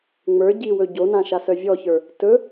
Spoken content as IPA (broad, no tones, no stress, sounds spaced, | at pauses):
ŋ͡m ə˞ ɟ i w ɵ ɟ o n ã ʃ a s œ vʲ ɔ ç ə˞ | t ɵ